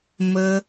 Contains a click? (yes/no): no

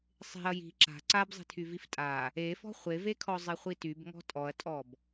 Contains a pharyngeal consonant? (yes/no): no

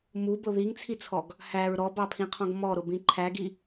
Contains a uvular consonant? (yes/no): yes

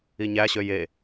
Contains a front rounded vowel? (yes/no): yes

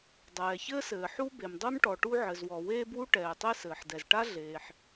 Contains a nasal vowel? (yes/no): no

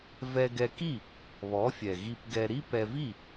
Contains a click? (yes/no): no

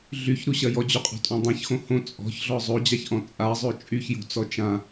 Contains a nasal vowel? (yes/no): yes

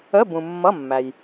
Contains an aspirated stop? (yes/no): no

